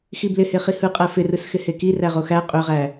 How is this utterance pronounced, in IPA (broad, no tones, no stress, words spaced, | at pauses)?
xiblɪhe χihɯqʼæ fɪ rɯsxɪheki ræʁoxæ qʼøʁæ